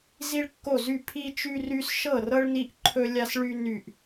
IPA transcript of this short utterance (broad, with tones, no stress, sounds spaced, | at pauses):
z i˥ ɭ kː o˥˧ z y˥˧ pʰ i˥ t͡ʃ y˥ r y˥ s ʃ ɤ˥˧ r ɤ˥ ɭ n i˥ ʔ ǃʰ ɵ˥ lʲ a˥ s ɭ y˥ n y˥˧ ʔ